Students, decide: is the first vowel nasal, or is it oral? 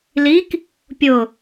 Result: oral